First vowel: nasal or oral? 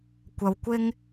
oral